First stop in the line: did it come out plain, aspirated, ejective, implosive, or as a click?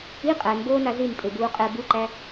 ejective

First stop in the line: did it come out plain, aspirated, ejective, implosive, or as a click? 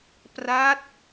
plain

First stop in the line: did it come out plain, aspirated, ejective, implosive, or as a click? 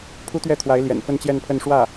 aspirated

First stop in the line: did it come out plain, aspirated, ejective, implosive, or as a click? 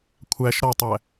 aspirated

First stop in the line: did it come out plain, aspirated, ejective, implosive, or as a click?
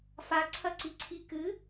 click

